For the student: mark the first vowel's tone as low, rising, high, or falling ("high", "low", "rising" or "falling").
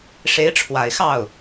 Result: rising